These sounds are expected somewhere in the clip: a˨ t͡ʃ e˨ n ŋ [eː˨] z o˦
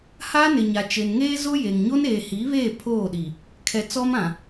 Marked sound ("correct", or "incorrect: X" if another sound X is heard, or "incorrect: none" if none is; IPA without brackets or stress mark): incorrect: eː˦